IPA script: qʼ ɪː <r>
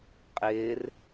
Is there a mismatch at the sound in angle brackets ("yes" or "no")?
no